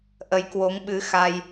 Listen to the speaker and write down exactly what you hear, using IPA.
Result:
ʔ ə˨˦ j k w o˨˦ ŋ ɓ ɨ˨˦ x a˧ j

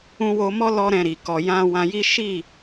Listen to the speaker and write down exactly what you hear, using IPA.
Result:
ũ˧ w o˧ m ɔ˦ l ɔ˦ ɾ ɛ̃˧ ɾ i˨ k ɔ˨ j ã˧ w ã˧ j i˦ ʃ i˦˨

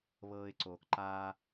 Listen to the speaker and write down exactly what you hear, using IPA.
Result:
β ɤː˧ ɪ̯ ǀ oː˨ k ǃ aː˦

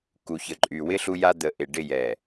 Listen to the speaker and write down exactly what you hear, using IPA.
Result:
k u˨ ç ə˨ ǃʼ y˨ w ɪ˦ ɬ u˦ j a˦ d̪ ə˨˦ ʔ ɪ˨ ɖ ɪ˦˨ j ɛ˨

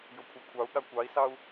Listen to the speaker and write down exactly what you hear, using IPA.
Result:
j o kʷʰ ɑ kʷʰ ɑ u̯ ɠ a kʷ ɑ i̯ s ɑ u̯

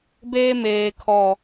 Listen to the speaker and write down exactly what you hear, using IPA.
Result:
b eː˦ m eː˨ kʰ ɔ˨

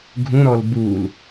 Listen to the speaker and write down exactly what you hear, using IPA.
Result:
ɡʱ ũ ɾ ɔ l b u l

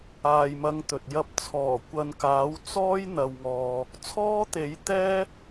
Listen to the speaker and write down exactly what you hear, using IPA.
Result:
aː˨ j m ɐ˨˧ ŋ t̪ ɵ˨ t̚ j ɐ˨˥ p̚ t͡sʰ ɔː˨˩ kʷ ɐ˨ n k aː˨˥ w t͡s ɔː˥ j n̪ ɐ˨ w ŋ ɔː˨ | t͡sʰ ɔː˥ t̪ e˨˥ j t̪ ɛː˥

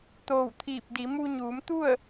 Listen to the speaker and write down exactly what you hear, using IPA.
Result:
t̪ oː˧˩ w t̪ʰ iː˧˩ p̚ d i˩˧ m u˧ ɲ uː˩˧ m t̪ u˥˨ ə̯

